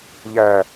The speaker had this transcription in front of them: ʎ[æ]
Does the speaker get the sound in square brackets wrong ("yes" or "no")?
no